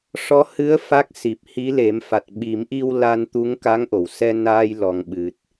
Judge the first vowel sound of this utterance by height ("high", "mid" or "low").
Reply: mid